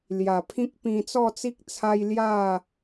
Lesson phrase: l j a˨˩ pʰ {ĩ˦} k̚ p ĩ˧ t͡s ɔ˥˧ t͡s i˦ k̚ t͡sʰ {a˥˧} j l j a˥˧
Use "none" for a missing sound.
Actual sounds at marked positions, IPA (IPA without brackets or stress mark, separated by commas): ĩ˦, a˦